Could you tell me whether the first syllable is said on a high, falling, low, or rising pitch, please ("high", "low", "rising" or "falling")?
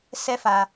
high